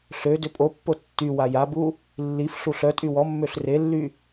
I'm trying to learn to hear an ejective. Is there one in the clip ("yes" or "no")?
yes